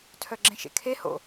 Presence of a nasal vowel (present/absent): present